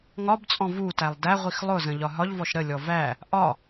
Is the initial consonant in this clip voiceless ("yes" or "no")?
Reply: no